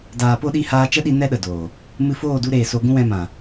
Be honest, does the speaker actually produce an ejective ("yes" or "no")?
no